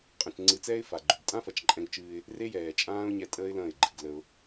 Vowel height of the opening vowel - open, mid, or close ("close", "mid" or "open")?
open